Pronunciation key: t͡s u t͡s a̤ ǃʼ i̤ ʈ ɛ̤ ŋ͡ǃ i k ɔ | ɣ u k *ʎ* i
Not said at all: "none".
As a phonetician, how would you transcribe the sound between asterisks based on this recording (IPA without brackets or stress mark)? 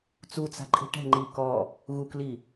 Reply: l